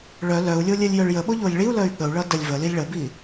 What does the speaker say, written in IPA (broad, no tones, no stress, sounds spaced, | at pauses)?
ɭ œ l œ u̯ lʲ o lʲ ɘ lʲ j œ ɭ j ə ɓ o ʎ o lʲ ɭ i u̯ l œ y̯ ɠ ə u̯ ɭ ʌ d ə lʲ v ə l i lʲ ɭ ə b i